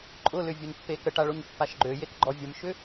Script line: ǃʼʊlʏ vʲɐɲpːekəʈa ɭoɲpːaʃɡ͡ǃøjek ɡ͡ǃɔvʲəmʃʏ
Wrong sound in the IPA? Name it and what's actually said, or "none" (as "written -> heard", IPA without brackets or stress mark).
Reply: none